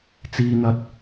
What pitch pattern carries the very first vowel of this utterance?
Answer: high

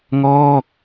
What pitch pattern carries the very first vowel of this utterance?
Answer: falling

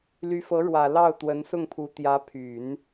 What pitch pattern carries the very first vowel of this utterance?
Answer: rising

